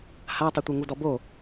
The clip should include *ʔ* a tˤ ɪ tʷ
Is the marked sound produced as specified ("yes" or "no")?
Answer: no